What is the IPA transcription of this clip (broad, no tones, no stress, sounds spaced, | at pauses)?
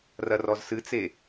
r ɐ r ɔ z s ɨ t͡s e